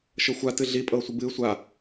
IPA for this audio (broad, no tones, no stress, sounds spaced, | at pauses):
ʃ ɤ xʷ a t ɨ ɮ i pʼ ɤː sʷ ɨ b ɨː sʷ a